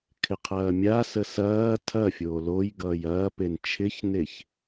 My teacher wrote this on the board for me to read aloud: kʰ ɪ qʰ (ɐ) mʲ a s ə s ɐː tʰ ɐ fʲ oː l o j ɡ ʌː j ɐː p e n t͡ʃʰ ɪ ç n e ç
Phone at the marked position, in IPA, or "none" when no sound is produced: ɐː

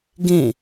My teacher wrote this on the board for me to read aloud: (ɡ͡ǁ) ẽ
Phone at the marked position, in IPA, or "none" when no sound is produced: ɡ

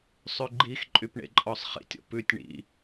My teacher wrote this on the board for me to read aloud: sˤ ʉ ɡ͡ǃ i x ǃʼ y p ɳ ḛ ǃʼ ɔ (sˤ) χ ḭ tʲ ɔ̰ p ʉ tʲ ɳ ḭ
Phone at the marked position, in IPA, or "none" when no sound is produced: sˤ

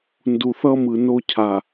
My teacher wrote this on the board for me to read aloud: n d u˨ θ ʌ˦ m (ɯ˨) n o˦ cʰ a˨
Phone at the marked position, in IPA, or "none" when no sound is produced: ɯ˨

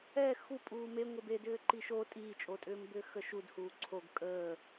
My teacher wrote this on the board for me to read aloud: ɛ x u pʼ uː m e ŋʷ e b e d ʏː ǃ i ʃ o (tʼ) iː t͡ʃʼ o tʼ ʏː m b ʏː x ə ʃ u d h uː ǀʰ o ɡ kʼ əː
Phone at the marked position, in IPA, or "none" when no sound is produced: tʼ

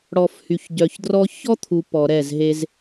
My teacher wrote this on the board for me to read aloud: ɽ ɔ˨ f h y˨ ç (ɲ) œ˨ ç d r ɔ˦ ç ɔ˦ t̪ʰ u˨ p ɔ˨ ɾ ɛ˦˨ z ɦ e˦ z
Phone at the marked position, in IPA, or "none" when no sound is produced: ɟ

